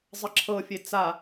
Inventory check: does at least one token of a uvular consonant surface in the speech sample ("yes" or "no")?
no